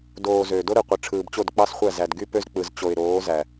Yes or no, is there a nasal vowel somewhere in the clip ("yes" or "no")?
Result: no